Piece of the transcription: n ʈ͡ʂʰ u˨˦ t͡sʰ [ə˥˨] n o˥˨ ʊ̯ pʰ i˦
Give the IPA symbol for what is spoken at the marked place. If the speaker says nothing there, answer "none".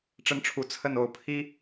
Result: ə˥˨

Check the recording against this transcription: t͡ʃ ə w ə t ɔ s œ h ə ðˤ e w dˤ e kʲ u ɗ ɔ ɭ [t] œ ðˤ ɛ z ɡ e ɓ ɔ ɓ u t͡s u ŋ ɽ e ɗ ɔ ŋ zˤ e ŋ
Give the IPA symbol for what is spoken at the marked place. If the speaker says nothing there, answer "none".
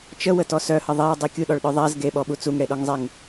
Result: ɗ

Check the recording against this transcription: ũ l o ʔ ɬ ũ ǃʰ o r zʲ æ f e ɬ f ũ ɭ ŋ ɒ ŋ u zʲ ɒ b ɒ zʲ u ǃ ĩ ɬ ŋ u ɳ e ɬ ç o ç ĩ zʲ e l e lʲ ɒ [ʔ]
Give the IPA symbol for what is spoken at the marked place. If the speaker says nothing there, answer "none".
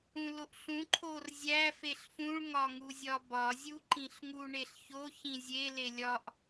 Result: ʔ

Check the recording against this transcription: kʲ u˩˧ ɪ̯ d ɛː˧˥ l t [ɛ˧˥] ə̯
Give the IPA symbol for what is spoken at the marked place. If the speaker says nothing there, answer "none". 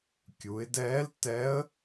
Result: ɛ˧˥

